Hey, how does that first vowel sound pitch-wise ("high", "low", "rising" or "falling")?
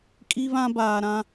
high